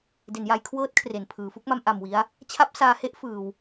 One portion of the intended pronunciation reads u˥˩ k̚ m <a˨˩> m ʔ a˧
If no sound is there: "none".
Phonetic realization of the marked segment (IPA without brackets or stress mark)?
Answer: a˦˥